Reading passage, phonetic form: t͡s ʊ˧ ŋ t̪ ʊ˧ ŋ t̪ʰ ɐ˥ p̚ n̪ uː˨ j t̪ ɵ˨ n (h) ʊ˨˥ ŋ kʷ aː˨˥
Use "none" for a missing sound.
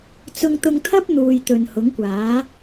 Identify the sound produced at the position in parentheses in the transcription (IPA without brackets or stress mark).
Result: h